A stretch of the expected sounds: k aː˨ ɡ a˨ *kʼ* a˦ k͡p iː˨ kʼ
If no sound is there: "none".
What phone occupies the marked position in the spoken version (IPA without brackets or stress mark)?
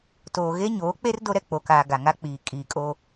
ŋ